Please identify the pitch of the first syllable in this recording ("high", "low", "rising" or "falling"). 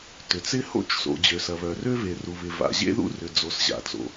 low